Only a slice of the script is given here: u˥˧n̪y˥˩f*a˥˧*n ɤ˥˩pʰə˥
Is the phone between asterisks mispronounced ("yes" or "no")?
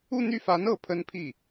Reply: yes